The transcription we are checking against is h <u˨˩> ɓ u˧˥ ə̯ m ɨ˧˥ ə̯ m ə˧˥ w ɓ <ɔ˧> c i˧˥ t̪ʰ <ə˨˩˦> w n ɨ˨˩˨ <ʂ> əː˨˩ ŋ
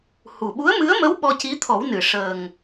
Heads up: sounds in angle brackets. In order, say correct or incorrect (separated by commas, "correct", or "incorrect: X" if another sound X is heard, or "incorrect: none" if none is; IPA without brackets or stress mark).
correct, correct, incorrect: ɔ˨˩˦, correct